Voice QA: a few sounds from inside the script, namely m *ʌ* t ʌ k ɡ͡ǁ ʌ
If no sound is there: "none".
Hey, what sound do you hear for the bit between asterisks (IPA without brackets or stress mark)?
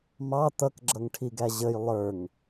ɑ